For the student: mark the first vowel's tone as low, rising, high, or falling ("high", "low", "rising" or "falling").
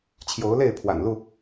rising